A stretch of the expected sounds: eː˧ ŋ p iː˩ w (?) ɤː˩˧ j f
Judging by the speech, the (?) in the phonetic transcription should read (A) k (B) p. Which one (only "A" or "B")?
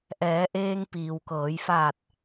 A